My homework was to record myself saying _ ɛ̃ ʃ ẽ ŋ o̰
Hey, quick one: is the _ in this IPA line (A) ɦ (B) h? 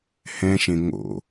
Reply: B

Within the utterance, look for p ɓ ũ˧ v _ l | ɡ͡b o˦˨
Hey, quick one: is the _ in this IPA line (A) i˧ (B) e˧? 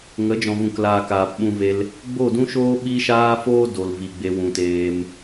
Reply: B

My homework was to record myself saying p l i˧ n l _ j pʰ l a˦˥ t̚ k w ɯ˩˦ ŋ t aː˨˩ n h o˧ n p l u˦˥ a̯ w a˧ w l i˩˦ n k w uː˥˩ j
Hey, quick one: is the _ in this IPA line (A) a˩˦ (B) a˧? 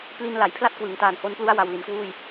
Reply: A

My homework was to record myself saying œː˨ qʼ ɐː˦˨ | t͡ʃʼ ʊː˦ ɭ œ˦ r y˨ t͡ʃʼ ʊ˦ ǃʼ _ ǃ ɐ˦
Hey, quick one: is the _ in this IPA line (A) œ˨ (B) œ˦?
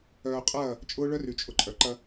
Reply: A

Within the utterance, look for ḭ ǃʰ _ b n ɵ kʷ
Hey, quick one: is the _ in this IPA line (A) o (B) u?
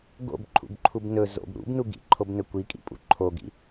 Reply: A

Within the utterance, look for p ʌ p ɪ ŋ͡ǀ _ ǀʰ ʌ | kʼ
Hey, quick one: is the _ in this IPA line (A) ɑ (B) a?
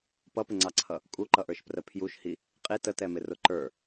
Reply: A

